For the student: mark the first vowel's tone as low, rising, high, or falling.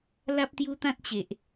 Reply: high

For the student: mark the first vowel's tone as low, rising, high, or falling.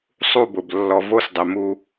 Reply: falling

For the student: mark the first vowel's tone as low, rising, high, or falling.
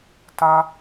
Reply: high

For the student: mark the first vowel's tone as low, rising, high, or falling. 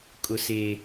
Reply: high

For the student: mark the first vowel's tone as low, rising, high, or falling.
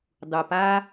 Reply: low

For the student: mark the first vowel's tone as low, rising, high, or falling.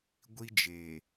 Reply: high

